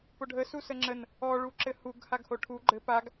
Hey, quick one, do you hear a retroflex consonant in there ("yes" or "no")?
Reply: yes